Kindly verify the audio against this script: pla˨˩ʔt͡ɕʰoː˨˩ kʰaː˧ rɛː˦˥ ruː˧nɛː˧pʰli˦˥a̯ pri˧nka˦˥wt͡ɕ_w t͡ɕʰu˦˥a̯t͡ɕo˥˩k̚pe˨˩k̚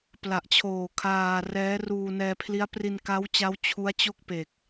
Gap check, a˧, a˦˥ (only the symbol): a˦˥